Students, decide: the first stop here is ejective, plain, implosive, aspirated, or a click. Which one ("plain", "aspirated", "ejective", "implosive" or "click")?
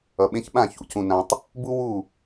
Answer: implosive